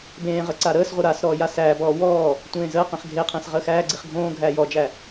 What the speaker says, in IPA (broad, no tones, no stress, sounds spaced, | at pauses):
b ẽː ʁ ə ǀ a ɾ əː s ʁʷ ə ɾ a s ɾ ɔː j a s æː b ɔː w ɔː | tʷ ẽː z əː q ẽ χ ɡʱ e qʰ ẽ s ʁ əː x æː ɡ͡ǀ i χ ɡʱ õː ɡʱ æː j ɔ d͡ʒ æ